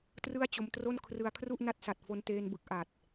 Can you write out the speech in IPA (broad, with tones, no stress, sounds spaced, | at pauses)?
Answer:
t r ɯ˥˩ a̯ t͡ɕ o˧ m t r o˥˩ n kʰ r ɯ˧ a̯ kʰ r u˥˩ ʔ n a˦˥ t̚ s a˨˩ t̚ f o˧ n t eː˧ n b ɯ˨˩ k̚ ʔ a˨˩ t̚